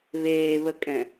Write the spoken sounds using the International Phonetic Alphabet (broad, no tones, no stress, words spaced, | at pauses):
βeːβəkʼɛ̃